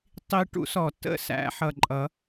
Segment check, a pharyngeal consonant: present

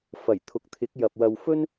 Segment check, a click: absent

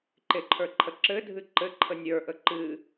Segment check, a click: present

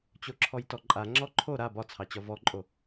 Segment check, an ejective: present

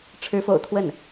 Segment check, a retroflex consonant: present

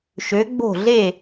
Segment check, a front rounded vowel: present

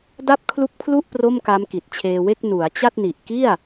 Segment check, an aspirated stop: present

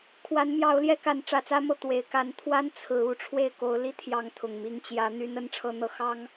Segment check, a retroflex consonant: present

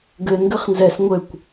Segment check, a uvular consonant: present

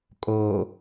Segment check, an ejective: present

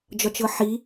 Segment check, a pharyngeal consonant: present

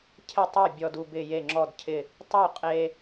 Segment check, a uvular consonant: present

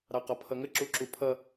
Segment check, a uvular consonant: present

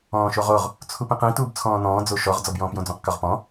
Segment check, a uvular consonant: present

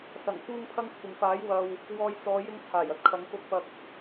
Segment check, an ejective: absent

